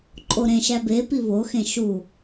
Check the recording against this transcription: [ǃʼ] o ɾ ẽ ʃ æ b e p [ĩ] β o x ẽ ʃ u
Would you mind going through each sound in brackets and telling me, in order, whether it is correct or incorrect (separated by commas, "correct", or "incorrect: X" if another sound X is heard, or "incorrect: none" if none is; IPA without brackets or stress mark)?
correct, incorrect: i